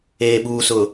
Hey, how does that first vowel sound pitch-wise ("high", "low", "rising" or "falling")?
low